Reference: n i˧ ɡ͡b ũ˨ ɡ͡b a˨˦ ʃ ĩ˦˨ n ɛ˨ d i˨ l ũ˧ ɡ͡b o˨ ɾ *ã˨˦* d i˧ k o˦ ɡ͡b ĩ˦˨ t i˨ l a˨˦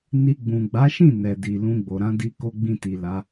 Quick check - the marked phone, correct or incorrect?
correct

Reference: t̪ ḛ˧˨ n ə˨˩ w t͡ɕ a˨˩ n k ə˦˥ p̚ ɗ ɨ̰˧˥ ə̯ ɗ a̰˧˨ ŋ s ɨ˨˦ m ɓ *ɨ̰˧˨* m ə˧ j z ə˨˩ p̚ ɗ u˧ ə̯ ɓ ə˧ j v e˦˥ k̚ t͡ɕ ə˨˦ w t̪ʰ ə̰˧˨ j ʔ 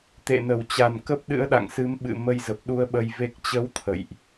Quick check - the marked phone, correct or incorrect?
correct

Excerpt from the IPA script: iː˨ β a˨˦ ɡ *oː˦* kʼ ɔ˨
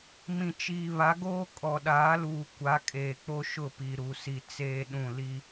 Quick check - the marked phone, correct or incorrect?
correct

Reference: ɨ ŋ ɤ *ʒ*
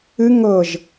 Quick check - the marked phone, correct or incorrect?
correct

